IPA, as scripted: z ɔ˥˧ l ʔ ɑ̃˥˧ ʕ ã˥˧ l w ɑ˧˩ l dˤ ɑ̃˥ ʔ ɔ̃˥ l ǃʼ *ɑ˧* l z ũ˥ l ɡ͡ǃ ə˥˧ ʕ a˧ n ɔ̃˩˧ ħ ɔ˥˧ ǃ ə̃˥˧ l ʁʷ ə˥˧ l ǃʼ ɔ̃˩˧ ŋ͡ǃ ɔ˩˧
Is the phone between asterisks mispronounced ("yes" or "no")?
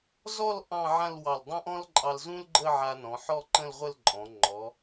no